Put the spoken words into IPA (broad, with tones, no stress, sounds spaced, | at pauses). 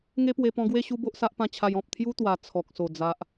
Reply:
ŋ e˦ p w e˧ p ɔ̃˧ ɡ w e˥˧ ɕ u˦ b o˦ ʔ s a˦ ʔ p ã˦ t͡ɕʰ a˧ j ɔ̃˨ p̚ t̪ʰ j u˦ t̪ w a˨˩ t͡sʰ ɔ˨ k̚ s o˨˩ d͡z a˦ ʔ